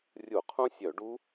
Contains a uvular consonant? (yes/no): yes